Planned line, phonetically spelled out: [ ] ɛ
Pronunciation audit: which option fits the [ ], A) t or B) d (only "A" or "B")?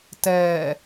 A